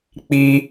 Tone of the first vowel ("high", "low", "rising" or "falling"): high